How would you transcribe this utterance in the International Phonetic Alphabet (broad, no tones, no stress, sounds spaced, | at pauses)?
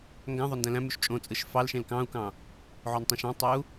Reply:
ŋ ɡ æ̃ ðˤ o n d æ̃ l æ̃ m y ʃ t͡ʃʼ õ t͡sʼ ɯ ʃ f ɑ l ʃ ẽ l k ɑ̃ u̯ k ɑ̃ | ʕ o n tˤ ẽ ʃ ɑ̃ tˤ ø u̯